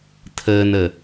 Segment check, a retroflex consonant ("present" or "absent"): absent